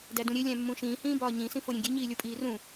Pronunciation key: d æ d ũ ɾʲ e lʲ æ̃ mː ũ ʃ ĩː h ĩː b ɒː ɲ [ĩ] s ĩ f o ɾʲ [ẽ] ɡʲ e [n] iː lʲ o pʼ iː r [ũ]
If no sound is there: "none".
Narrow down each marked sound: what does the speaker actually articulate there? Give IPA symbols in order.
ĩ, ẽ, ɲ, ũ

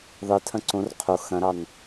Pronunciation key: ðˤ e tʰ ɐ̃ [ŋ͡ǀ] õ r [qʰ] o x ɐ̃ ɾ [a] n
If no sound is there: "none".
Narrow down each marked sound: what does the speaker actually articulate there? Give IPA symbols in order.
ǀ, qʰ, ɑ

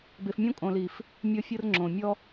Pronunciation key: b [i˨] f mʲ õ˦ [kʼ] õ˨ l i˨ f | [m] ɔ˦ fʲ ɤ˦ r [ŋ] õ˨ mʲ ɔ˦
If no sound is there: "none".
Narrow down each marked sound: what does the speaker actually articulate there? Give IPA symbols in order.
e˨, kʼ, mʲ, ŋ͡ǁ

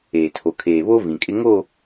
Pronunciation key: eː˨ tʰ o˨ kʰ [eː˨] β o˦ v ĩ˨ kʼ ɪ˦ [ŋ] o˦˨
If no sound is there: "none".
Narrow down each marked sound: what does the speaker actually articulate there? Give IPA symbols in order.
eː˨, ŋ

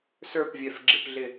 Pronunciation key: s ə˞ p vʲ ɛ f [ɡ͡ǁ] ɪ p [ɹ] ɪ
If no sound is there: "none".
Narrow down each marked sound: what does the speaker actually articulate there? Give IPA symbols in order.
ɡ͡ǁ, ɮ

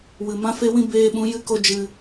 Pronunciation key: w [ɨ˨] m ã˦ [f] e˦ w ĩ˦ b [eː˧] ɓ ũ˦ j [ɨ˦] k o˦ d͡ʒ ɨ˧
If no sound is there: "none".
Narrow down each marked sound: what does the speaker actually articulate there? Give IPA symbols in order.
ɨ˨, f, eː˦, ɨ˦

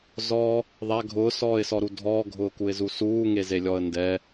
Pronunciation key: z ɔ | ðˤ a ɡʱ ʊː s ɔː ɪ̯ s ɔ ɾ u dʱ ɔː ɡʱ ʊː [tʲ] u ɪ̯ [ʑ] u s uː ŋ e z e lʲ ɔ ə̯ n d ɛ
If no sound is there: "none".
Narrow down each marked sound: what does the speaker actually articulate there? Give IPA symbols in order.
k, z

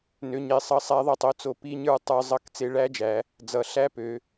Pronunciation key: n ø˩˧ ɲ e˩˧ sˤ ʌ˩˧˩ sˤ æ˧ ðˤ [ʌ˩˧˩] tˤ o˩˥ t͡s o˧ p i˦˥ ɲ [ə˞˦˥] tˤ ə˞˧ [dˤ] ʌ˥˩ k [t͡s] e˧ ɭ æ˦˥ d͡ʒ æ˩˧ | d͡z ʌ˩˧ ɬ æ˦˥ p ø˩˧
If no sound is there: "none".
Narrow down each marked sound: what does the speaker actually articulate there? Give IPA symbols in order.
ʌ˧, ə˞˦˥, zˤ, t͡s

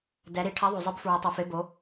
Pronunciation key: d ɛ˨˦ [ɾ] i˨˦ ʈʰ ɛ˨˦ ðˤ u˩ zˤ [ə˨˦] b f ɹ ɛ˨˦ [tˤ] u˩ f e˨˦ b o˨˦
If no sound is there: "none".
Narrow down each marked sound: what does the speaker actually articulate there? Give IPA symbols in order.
ɾ, ɯ˨˦, tˤ

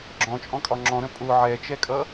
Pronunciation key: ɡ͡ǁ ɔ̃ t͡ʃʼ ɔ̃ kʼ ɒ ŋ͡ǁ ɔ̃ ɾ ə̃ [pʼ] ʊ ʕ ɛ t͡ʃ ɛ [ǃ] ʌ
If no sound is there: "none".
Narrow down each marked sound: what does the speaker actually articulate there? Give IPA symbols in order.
pʼ, kʼ

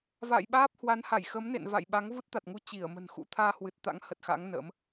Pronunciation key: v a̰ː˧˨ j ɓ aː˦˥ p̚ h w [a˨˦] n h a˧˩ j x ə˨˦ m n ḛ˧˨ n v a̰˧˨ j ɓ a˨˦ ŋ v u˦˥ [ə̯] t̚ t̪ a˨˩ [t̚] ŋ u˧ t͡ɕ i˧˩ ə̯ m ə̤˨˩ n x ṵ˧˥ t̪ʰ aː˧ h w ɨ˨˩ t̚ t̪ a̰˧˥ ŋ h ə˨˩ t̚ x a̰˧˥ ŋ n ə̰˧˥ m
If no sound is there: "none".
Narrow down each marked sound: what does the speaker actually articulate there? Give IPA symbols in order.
a˨˦, none, t̚

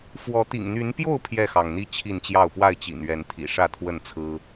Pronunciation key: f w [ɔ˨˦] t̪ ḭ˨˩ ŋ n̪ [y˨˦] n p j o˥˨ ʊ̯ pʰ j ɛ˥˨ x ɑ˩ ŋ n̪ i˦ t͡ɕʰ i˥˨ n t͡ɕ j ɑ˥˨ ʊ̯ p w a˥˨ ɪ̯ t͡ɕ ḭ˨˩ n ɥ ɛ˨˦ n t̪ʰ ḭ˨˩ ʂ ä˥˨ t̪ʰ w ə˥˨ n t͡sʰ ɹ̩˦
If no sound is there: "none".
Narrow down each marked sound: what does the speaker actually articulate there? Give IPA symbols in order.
ɔ˨˦, y˨˦

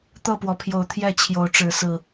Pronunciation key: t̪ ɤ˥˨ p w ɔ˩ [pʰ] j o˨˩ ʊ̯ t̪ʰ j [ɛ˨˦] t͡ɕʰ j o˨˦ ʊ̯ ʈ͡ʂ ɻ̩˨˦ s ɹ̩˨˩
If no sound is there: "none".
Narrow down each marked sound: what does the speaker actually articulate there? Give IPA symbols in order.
pʰ, ɛ˥˨

